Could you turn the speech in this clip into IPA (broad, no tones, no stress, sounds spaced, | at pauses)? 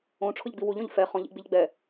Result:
õ ʈ͡ʂʰ ʊ ʎ ɡ͡b i w u ʎ õ ʎ f ɛ χ ɔ̃ ʎ ḭ ɡ͡b i ʎ ɡ͡b ɛ